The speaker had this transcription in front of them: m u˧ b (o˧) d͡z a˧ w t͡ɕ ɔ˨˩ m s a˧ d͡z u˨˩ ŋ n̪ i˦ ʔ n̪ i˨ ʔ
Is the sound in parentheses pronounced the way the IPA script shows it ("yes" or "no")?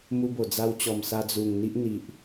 no